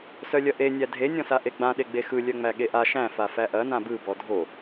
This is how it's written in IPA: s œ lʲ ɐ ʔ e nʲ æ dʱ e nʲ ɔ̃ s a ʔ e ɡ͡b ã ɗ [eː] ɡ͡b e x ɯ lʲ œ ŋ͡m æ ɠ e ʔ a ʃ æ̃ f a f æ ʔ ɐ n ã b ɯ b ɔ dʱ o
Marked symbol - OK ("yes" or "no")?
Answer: no